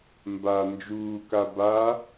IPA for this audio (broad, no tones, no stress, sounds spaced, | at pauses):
m b a n d͡ʒ uː k a b a